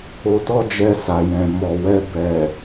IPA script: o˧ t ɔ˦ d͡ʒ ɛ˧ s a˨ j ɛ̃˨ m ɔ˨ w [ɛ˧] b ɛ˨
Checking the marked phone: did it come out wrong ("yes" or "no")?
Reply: no